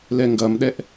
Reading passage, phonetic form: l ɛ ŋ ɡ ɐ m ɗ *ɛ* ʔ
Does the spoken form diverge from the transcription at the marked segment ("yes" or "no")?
no